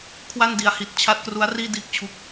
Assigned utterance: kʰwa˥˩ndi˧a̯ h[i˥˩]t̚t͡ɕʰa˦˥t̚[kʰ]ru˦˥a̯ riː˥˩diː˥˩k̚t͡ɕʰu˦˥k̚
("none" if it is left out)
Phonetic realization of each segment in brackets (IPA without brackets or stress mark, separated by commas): i˨˩, k